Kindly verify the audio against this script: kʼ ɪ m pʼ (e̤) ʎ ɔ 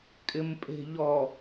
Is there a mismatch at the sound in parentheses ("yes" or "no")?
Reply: no